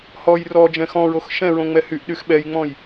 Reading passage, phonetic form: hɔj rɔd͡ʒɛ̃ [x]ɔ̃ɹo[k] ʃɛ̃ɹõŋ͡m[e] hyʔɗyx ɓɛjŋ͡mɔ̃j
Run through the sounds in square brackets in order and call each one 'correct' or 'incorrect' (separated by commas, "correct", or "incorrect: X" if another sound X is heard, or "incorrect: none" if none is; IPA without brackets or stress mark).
correct, incorrect: x, incorrect: ɛ